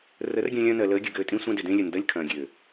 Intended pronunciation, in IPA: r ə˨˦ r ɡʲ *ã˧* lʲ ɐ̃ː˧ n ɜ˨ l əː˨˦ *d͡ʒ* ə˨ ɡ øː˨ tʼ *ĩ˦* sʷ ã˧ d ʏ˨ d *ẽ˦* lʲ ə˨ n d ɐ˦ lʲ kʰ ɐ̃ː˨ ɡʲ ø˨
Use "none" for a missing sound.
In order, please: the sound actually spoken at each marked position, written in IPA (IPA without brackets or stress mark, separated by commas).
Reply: ã˧, ɡʲ, ĩ˧, ẽ˧